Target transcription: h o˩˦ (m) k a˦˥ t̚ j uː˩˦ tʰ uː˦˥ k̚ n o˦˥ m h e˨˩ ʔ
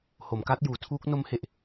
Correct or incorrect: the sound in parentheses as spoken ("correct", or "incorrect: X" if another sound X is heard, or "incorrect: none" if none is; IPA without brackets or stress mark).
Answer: correct